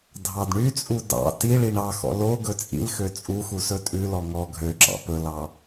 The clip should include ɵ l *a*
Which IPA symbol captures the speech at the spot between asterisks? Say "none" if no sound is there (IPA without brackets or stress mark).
ɑ